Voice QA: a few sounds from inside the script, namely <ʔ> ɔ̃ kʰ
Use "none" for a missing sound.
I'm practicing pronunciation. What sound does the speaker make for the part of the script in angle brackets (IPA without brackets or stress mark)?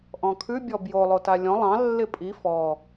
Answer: ʔ